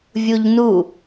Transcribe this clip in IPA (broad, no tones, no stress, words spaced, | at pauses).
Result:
vʲuʎnu